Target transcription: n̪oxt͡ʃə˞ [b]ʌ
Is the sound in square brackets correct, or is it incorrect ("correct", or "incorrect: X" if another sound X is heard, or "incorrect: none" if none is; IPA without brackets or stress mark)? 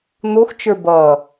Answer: correct